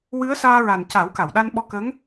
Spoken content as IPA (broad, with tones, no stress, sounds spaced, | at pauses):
w ɨ˧˥ ə̯ s aː˧ ɹ a˨˩ n c a˨˩˦ w k a˨˩˨ w ɗ a˧ n ɓ ɔ˧ k ə˧˥ ŋ